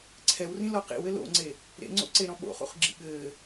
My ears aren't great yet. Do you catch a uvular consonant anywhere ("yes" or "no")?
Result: yes